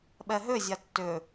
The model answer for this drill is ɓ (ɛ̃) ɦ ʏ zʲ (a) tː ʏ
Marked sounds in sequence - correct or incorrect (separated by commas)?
incorrect, correct